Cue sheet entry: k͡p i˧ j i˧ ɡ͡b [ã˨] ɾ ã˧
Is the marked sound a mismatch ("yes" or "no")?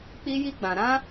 no